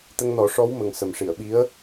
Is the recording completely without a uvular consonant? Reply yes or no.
yes